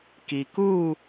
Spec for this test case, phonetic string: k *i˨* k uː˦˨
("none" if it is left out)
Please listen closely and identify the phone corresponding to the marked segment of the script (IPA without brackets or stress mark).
i˨